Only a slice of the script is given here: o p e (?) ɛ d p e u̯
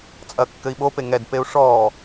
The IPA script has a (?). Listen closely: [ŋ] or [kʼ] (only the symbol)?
ŋ